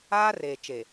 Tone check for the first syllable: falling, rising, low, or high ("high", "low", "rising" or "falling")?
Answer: high